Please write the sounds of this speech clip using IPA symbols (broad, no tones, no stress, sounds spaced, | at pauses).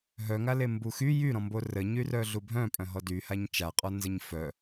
ɦ œ ŋ a l e m b u x y j y ɾ ɔ̃ m b o r ə ɲ y r œ ɮ u bʱ œ̃ pʼ œ̃ ɦ ɔ d y h a ɲ t͡ʃ a qʼ ɔ n z ə ɲ f œ